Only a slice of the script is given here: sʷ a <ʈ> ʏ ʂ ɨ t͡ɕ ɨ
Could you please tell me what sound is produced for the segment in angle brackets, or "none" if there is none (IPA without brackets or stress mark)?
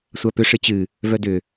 p